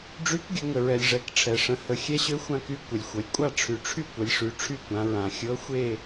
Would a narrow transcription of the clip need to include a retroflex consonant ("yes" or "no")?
yes